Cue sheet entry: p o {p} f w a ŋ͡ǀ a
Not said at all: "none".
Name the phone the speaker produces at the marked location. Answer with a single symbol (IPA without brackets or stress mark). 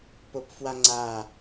p